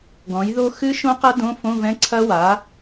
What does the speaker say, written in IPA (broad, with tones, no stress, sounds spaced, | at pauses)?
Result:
ɡ ɔ̃˩˥ j ð o˦˥ x ɨ˦˥ ʃ õ˦˥ q ɐ˦˥ d õ˧˥˧ f õ˧˥˧ v ɛ̃˧˥˧ ǀʰ ɐ˦˥ w a˩˥